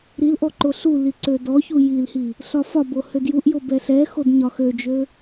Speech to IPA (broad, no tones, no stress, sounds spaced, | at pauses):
ɾ i l ʔ ɔ ǃ o ɬ u l i ǀ ø d ɔ ç u j i l h i | ɬ ɒ f ɒ b o h ø d j u ʔ j o b ɛ ɬ ɛ x o d ɲ ɒ x ø d͡ʒ ø